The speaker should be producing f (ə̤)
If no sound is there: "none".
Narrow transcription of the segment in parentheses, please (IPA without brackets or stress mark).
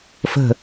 ə̤